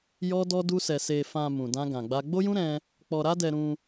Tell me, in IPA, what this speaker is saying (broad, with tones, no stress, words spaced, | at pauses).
jɔ˦dɔ˦du˦sɛ˧ se˧fã˧ mũ˧dã˦ɡã˧ɡ͡ba˦ ɡ͡bo˦jũ˦ ɾɛ̃˦ | k͡pɔ˧ɾa˦dɛ˧ɾũ˧